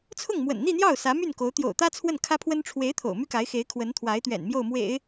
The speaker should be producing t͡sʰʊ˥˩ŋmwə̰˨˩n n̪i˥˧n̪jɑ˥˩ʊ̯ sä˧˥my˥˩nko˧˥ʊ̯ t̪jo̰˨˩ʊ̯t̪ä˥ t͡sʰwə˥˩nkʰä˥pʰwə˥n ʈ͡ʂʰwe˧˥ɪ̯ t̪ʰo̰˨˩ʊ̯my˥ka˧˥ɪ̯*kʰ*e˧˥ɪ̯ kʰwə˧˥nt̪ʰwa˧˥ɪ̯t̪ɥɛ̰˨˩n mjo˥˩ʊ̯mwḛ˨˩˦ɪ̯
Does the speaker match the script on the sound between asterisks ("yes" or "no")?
no